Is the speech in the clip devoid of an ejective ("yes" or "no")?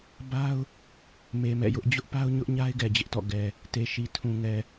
yes